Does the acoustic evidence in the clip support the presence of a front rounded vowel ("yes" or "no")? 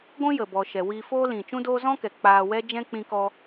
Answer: no